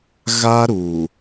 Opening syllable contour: high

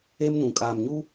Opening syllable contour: high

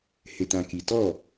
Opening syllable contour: low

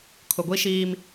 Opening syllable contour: low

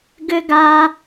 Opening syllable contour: high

